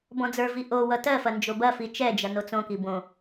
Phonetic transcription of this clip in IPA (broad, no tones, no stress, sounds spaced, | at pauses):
b ɔ̃ d͡z ə˞ v i ʔ o w ʌ t ɜ f ɐ n d͡ʒ o b ɐ f i t͡ʃ ɛ d͡ʒ ɐ n o t͡s õ k i b õ